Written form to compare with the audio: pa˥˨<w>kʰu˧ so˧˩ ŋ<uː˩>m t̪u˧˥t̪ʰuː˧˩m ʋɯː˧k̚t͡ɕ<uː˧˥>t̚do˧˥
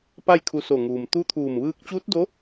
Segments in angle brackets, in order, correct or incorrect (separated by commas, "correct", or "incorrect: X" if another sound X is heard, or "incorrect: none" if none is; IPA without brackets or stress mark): incorrect: j, correct, correct